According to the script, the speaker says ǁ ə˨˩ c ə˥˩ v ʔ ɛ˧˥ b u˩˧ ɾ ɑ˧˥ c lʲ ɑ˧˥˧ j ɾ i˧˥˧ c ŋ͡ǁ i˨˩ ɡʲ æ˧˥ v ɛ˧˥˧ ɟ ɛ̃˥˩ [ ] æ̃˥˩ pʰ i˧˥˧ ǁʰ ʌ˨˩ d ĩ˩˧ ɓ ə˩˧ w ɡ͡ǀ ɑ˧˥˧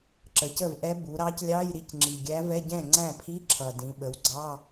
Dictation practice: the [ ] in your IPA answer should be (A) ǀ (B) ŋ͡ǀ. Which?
B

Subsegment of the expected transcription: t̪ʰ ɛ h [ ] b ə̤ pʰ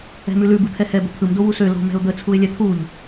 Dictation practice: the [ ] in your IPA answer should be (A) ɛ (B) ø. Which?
A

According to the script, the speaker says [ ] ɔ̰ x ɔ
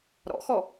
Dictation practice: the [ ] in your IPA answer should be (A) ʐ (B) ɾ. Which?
B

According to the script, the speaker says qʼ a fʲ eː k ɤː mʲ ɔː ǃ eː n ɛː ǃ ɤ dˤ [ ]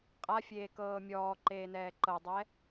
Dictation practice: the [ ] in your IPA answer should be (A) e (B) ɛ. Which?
B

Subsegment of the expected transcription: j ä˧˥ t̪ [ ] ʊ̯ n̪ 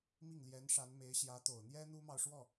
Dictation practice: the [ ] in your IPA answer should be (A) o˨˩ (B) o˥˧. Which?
A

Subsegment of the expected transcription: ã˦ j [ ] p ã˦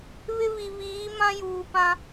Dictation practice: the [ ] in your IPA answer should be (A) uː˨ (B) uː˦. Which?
A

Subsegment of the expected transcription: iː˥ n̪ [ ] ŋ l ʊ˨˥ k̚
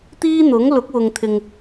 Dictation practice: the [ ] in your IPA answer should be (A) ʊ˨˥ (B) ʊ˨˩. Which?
A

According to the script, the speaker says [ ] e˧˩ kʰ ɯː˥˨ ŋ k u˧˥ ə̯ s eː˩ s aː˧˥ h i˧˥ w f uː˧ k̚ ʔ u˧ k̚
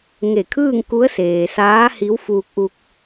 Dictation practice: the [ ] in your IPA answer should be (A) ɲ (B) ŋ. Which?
B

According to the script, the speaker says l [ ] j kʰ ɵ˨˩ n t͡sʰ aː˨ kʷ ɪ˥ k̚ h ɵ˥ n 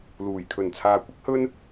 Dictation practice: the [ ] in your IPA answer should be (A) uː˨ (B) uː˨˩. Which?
B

